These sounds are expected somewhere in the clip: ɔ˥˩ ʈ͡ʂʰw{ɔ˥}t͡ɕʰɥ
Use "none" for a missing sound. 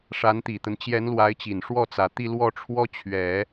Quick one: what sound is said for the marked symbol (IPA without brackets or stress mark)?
ɔ˥